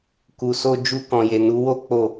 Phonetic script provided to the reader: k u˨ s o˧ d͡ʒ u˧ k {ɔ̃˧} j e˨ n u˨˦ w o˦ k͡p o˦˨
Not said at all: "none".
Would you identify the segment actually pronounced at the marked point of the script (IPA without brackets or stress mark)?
ɔ̃˨